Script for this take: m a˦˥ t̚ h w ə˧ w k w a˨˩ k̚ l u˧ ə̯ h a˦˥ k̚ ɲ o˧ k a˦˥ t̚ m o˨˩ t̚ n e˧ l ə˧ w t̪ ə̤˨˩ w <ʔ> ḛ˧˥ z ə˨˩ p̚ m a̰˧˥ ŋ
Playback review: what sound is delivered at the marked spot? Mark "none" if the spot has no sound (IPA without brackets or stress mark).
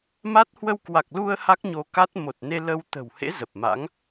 h